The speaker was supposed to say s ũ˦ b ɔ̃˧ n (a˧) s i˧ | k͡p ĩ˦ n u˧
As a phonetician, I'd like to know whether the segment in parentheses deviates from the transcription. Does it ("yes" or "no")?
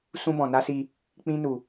yes